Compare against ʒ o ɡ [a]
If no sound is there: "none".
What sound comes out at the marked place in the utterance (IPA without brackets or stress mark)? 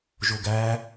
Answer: æ